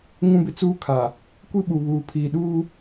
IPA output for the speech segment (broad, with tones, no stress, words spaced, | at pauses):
ŋũ˦bɪ˦t͡suː˦kʰa˨ | kʷi˦ɓu˨βuː˨ pʰiː˨ ɗuː˦